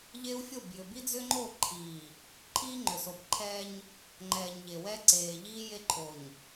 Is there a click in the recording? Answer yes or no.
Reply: yes